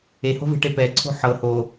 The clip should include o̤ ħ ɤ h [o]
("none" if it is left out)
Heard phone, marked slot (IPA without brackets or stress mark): o